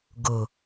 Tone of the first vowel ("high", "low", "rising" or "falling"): low